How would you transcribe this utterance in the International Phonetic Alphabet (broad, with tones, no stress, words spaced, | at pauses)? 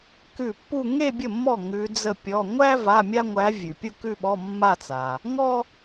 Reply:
kʉ˥˩ pːu˥˧ ŋe˥˧bʲə˥˩mːɔ˥˩ ŋʉ˧˥d͡zə˥˧pʲɔ˧˥˧ ŋʷæ˥ va˧˥˧mʲa˥ŋʷæ˧˥ vʲʉ˨pʲu˥˧kʉ˥˧ɓɔ˧˥˧ mːa˥˧t͡sa˨ | ŋɔ˥